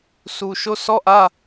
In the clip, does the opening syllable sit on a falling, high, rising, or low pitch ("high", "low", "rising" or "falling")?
low